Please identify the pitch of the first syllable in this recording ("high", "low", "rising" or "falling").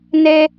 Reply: high